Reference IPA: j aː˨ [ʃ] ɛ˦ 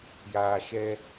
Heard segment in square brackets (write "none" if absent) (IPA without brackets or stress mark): ʃ